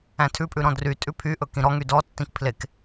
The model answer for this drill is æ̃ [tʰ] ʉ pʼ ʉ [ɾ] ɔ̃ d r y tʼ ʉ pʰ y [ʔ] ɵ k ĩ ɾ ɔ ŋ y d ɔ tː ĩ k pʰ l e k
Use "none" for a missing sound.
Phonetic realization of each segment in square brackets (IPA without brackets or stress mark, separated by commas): tʰ, ɾ, ʔ